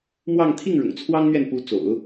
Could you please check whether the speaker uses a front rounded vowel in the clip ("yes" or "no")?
no